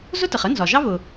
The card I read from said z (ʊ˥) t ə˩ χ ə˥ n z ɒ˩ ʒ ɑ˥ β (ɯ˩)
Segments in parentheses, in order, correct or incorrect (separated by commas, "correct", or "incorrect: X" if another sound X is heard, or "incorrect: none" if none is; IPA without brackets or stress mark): correct, incorrect: ʊ˩